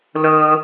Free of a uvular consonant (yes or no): yes